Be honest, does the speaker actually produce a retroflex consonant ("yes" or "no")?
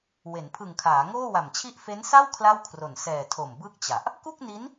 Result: no